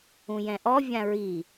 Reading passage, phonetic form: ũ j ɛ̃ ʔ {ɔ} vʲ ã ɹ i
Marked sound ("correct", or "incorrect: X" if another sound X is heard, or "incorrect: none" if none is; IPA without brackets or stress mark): correct